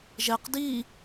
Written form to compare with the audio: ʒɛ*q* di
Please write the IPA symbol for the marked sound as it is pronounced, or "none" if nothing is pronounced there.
q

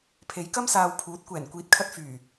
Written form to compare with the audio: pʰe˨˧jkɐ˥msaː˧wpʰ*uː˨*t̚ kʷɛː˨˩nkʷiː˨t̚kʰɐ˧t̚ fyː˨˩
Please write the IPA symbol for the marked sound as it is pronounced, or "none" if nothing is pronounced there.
uː˨˥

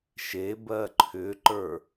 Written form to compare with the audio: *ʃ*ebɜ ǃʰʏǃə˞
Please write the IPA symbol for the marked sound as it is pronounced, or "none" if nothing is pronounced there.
ʃ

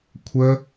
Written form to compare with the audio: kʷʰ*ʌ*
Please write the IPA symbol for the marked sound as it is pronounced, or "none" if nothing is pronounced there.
ə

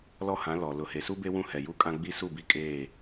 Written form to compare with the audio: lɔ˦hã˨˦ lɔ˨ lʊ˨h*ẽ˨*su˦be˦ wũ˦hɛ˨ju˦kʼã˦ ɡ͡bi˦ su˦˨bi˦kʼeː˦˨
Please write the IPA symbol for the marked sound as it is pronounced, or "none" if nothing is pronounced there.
e˨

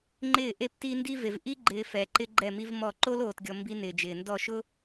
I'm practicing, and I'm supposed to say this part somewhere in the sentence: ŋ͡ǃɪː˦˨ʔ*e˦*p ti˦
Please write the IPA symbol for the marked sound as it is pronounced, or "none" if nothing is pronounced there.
e˦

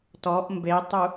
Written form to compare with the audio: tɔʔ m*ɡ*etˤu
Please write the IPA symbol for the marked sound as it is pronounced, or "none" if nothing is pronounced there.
b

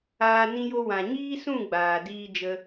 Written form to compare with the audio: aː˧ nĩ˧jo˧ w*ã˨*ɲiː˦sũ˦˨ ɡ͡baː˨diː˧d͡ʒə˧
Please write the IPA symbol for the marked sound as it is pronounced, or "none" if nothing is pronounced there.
ã˨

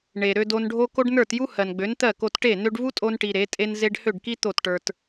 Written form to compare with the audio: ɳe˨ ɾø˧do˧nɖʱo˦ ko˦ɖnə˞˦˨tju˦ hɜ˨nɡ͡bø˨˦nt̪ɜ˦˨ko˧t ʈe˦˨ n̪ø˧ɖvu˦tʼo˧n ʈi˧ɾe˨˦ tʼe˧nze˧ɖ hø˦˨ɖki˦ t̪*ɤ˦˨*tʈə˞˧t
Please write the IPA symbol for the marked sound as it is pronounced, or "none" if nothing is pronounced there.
o˦˨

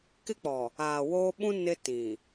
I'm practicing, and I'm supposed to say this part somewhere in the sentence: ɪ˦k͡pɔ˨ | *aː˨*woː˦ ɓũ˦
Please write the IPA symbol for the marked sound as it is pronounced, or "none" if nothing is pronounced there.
aː˨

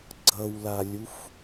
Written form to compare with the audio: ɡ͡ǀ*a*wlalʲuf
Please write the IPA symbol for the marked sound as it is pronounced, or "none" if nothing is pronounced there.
ʌ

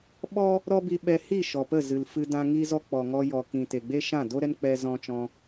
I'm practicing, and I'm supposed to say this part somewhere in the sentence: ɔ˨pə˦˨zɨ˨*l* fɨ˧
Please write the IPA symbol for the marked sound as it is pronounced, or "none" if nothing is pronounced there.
l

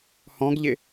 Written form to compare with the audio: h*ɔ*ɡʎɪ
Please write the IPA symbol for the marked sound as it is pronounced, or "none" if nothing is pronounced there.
ɔ̃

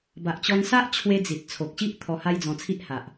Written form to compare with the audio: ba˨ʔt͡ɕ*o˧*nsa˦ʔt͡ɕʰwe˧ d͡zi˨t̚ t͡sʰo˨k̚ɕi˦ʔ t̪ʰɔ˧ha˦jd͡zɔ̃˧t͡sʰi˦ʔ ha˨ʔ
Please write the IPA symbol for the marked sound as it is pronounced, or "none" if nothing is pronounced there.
ɔ˧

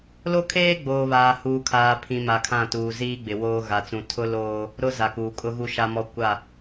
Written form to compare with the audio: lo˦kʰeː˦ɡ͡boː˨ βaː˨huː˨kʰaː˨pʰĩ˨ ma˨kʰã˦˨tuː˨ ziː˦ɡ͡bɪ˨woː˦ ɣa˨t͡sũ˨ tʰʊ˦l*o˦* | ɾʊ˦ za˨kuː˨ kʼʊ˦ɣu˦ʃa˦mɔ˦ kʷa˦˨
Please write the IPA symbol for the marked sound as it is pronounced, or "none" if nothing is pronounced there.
oː˦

